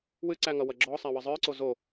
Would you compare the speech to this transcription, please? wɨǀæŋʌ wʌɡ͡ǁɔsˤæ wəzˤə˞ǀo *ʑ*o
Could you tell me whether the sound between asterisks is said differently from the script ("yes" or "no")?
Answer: yes